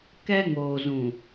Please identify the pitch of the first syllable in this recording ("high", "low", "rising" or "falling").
high